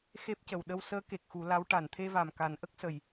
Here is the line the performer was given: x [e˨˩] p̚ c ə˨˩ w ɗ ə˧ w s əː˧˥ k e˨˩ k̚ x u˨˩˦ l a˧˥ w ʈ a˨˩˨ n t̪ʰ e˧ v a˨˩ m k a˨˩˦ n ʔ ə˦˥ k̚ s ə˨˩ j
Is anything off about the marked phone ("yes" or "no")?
yes